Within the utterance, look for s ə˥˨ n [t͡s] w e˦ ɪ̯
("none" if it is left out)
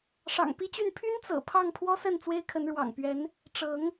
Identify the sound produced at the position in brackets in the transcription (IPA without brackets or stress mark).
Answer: t͡s